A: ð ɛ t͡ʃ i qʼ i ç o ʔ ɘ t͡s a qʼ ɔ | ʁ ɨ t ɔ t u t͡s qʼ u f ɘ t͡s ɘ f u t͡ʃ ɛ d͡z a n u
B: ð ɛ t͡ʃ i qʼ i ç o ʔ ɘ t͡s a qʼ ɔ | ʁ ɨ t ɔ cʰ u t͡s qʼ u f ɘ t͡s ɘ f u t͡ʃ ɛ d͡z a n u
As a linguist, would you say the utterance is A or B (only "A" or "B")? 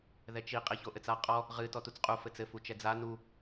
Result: A